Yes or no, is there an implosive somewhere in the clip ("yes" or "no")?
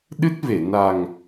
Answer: yes